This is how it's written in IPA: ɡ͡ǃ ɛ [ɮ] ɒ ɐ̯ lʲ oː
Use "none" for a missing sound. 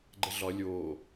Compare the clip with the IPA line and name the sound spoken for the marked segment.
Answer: ɮ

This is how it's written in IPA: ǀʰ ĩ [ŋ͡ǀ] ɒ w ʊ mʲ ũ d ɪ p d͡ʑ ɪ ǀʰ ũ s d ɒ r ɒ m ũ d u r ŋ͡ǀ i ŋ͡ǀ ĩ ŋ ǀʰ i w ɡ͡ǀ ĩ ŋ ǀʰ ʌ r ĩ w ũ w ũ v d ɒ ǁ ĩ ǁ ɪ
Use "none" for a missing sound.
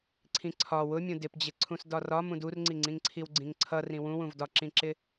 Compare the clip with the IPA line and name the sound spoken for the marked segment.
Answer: ǀʰ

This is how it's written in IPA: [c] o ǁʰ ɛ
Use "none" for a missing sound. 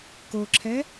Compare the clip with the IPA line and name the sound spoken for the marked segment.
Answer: k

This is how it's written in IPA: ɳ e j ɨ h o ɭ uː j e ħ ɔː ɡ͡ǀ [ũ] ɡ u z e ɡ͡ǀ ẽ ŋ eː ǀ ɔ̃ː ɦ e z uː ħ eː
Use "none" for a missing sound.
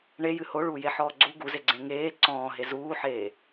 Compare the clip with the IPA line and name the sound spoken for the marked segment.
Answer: u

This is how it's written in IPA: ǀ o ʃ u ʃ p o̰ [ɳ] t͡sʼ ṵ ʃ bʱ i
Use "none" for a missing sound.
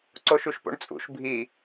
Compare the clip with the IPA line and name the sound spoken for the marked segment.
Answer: ɳ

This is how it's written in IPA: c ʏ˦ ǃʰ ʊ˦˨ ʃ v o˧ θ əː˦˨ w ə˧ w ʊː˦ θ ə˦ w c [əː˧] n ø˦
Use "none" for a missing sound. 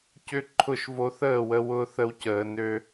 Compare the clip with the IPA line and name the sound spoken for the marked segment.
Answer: əː˧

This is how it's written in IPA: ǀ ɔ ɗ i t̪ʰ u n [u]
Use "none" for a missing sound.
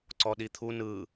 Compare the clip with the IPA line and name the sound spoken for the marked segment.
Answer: ɯ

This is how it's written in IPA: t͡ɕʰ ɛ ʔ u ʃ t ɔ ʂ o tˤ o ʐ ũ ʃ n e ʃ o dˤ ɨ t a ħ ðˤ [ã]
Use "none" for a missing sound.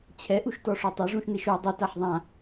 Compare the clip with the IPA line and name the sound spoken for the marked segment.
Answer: ã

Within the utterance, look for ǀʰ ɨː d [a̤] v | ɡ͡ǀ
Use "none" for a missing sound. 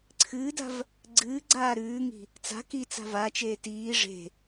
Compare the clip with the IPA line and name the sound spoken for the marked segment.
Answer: a̤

